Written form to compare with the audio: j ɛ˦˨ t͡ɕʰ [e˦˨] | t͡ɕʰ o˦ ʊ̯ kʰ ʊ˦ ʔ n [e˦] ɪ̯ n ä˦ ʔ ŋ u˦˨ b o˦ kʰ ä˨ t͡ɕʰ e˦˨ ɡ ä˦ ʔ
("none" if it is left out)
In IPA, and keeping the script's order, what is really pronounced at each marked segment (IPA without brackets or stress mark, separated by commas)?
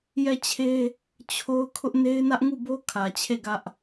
e˦, e˦